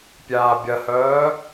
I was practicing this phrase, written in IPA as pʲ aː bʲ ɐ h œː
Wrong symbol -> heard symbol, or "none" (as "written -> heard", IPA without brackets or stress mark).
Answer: none